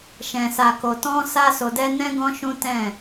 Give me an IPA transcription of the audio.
ʃɛ̃˨sa˨ko˨ tɔ̃˧sa˧ so˧dɛ˦ nɛ̃˦ɡɔ̃˦ʃũ˦ tɛ̃˦˨

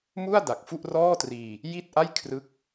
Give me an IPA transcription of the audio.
mu˥˩a̯ da˨˩k̚fu˥˩ʔ rɔː˥˩triː˧ | ji˥˩t̚ʔa˥˩j kʰrɯ˦˥k̚

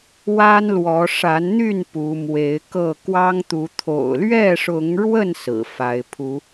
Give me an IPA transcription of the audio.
wa˦nlwɔ˨˦ ʂa˨˦nn̪y˥˨n pu˨˦mwe˨˦ɪ̯kɤ˥˨ kwɑ˦ŋt̪u˨˦ t̪ʰo̰˨˩ʊ̯lɥɛ˥˨ʂʊ˨˦ŋɻwə˥˨n sɹ̩˨˩fa˨˦ɪ̯ pʰu˨˦

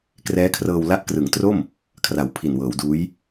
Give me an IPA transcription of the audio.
krɛː˦˥kʰrɤː˧w la˦˥ʔkrɯ˩˦ŋ tro˥˩m | kʰra˨˩wpʰi˨˩nwɤː˩˦wduː˦˥j

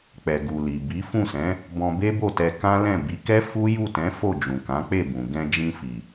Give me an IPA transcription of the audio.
k͡pɛ˨ɡu˨ li˨bi˨˦ fũ˦˨sɛ̃˨˦ | bɔ̃˧be˦bo˦˨tɛ˧ kã˦lɛ̃˦˨ bi˨˦kɛ˦ fu˦ju˦˨tɛ̃˨˦ fo˦˨d͡ʒũ˨kã˨˦k͡pe˦˨ bũ˨ ɡɛ̃˧ d͡ʒĩ˧fi˨

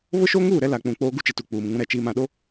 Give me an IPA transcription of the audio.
βʊ˦ʃo˦ŋuː˦˨ ɾɛ˦la˨k͡pũ˨ k͡poː˦ ɡu˦t͡ʃɪ˨tu˨ k͡puː˨m ŋũ˦ɾɛ˨t͡ʃiː˦m ã˨ɗo˦

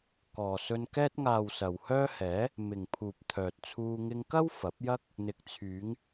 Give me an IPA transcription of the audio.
kɔː˨sɵ˧n kɛː˧t̚ŋaː˨w sɐ˨whœː˥hɛː˨˥ | mɪ˨ŋpʰuː˨p̚ t̪ʰœː˨t̚t͡sʰuː˧ ŋɪ˧ŋkɐ˥w fɐ˨˥p̚jɐ˥k̚ | n̪ɪ˨k̚t͡sʰyː˨˧ŋ

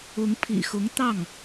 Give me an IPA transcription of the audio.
ʊ˧˥ŋpʰḭ˨˩xʊ˧˥ŋ t̪ɑ˥˩ŋ

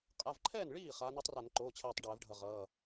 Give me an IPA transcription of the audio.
qʼa˩˧˩vǃʰɛː˥˩n ɭiː˥˩ χaː˨˦ne˦˥tˤra˧˩˧n ǃoː˩˧˩t͡ɕʰɛː˧˩tˤ ɖɛː˧˩˧vɖʱʌ˧˩ʁʌː˩˧˩

